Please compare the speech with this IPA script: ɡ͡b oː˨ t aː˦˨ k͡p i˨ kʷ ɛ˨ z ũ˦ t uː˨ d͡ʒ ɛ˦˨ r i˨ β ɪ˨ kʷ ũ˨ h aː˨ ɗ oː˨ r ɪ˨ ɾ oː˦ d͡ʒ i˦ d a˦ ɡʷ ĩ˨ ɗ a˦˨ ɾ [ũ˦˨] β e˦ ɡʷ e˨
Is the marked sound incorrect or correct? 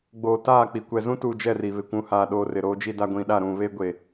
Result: correct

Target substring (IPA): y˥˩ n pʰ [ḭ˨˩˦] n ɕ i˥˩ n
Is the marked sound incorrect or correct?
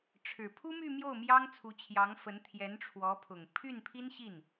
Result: incorrect: i˥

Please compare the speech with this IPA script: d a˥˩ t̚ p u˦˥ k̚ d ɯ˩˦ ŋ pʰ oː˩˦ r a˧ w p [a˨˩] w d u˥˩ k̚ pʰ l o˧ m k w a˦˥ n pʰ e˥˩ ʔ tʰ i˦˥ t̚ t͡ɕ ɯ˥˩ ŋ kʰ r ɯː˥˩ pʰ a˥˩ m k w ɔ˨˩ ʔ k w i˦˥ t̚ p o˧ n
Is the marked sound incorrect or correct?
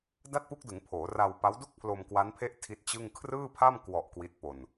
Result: incorrect: a˦˥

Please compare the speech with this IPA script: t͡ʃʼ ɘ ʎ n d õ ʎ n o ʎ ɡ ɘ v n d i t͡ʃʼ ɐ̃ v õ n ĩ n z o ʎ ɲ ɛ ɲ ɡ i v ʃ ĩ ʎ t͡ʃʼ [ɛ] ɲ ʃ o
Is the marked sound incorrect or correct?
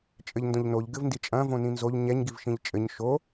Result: incorrect: ɘ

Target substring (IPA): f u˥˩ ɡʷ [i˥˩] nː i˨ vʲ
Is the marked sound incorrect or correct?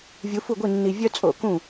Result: correct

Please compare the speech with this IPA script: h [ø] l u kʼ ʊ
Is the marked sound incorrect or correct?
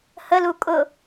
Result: incorrect: ə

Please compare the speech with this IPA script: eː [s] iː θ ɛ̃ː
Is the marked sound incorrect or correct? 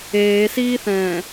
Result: correct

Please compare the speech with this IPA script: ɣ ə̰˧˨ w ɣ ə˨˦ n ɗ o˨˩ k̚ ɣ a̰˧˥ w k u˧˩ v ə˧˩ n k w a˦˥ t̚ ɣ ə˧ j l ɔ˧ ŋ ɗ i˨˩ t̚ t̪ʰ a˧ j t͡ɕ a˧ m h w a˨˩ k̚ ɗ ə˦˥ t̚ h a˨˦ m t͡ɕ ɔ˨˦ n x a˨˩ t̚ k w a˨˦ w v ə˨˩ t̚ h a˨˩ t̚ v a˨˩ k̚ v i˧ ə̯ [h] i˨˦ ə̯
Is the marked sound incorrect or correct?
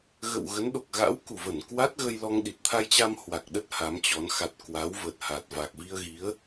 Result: incorrect: ɣ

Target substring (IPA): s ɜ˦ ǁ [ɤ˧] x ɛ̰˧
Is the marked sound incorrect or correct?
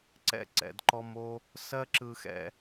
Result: incorrect: ɯ˧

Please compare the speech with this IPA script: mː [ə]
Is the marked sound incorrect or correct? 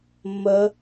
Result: correct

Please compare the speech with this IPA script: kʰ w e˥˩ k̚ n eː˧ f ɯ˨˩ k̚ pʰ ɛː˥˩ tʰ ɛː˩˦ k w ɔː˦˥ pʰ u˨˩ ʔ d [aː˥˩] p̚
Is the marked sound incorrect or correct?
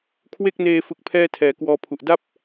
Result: incorrect: a˥˩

